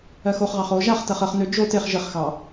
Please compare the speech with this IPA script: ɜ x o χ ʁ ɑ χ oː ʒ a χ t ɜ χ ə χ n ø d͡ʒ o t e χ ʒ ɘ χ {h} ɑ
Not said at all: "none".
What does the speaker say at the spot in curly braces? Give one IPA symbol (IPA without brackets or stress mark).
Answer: x